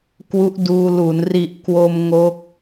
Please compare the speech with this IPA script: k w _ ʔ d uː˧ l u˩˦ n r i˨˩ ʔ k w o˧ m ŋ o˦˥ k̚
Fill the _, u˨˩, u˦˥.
u˦˥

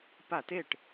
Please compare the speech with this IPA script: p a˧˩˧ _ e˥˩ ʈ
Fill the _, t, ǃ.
t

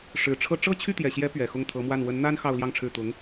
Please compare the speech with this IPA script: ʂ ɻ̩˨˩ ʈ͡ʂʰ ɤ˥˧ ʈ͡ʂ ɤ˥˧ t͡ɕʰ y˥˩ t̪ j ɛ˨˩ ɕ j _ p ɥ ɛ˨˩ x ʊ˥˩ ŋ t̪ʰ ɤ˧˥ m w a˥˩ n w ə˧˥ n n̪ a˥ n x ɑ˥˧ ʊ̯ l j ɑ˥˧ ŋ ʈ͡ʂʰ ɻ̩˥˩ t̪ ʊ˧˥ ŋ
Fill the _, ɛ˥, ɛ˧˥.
ɛ˧˥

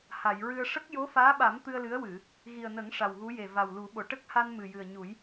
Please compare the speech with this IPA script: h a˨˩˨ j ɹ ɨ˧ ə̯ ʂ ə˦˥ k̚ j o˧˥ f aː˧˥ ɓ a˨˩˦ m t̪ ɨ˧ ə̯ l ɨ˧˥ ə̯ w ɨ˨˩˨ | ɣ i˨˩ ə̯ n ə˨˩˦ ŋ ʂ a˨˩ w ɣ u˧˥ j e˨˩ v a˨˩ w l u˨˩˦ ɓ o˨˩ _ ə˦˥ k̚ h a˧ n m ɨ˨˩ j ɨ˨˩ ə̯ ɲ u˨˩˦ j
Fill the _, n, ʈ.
ʈ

